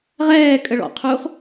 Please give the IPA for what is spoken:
ʁ ɛː kʼ ə ɭ ɔ̰ qʰ uː χ

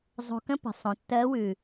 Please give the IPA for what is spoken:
zˤ o̤˧ k ə̃˥ p ə̤˩˧ sˤ õ˩˧ tː ɜ˧˥ w ʉ˩

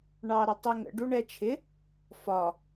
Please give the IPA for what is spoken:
ɳ ɑ ɾ ə tˤ i ŋ ə̰ ɖ u ɳ ɛ t͡ʃʰ ɪ | f ɒ

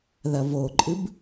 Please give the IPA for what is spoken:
ð ɐ v o ǃʼ ɨ b

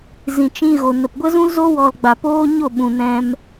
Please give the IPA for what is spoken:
z ĩ˨ t͡ʃ ĩ˧ ɣ o˨ n ə˨ p ɡʷ ə˦ z ũ˦ l z o˦ w ɔ˧ l ɡ͡b a˨ p oː˦ ɲ o˦˨ ɓ ũ˨ n ɛ̃˧ m

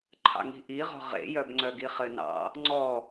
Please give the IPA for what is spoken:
ǃʰ ɑ̰ ŋ i̤ ʔ i ʁ ɔ̤ ʁ ḛ j œ b ŋ͡ǀ œ ɡ i χ ɘ n ɑ̰ | ŋ͡ǀ ɔ

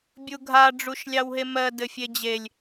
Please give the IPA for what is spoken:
bʲ u ɡʱ a ɖ͡ʐ u ʃ lʲ ɑ w ɦ e m ɜ d ɘ fʲ e d͡ʑ e lʲ

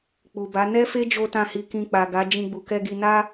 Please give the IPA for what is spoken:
k͡p u˨ b a˨˦ n ɛ˦ f e˦ d͡ʒ o˦ t ã˦˨ h i˧ k ĩ˧ k͡p a˨ ɡ a˨˦ d͡ʒ ĩ˧ ɡ͡b u˨ k ɛ˧ ɡ i˧ n a˦

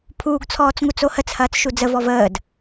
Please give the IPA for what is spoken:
pʰ uː ɡ t͡sʰ ɔː t͡s ŋ u t͡s o h ə t͡s h ɐː t͡s ʃ u d͡z ə v ɔ v əː d

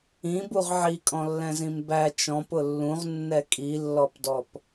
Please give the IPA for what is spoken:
ĩ b u ʁ ʕ i kʼ ɔ̃ lː ɛ̃ z ĩ m b æ t͡ʃ ɔ̃ p ʊ lː ũ ʁ nː ɛ kʼ i lː ɔ p d ɔ p

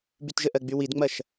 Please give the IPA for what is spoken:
b y t ʒ ə ʔ ɜ ɡ͡b y w i d ŋ͡m ɐ ʃ

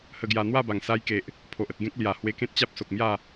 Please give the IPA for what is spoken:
h ə˧ ɡ j a˧ n̪ w a˥˧ b a˨˩ ŋ s a˧ j k e˨ ʔ | pʰ o˨ ʔ ə˨ t̚ ɡ ẽ˦ k̚ l j a˨˩ h w e˧ k ẽ˦ t̚ t͡ɕ a˦ p̚ s o˨ k̚ m j a˥˧

